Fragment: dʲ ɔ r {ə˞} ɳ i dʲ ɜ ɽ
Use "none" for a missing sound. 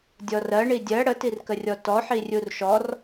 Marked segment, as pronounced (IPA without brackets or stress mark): ɜ